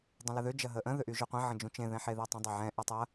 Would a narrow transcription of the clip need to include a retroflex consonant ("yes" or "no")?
no